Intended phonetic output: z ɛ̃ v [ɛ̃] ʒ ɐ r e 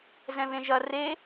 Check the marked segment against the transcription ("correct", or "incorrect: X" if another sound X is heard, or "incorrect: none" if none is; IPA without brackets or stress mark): incorrect: ẽ